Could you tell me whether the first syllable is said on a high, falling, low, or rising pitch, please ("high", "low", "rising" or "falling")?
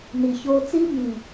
low